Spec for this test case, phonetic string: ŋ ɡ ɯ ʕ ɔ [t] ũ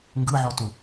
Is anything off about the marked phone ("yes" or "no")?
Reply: no